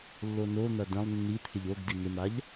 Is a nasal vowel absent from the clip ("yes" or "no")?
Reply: no